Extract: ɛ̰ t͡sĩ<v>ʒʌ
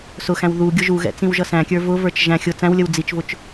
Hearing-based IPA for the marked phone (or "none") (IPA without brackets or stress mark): w